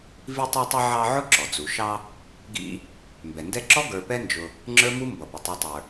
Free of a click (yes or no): no